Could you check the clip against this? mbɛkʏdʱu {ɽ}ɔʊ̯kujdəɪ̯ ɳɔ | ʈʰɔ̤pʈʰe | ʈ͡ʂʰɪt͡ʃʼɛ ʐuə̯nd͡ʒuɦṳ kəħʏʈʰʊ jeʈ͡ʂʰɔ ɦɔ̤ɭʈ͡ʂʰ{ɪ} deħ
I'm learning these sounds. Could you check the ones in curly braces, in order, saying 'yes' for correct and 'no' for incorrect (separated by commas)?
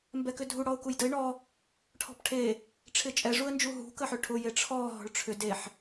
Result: yes, no